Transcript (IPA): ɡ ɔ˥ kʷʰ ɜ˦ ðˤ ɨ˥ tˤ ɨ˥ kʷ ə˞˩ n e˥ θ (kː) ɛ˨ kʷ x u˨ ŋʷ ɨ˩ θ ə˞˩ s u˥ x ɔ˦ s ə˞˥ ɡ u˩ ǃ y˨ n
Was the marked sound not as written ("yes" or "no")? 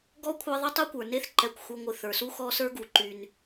yes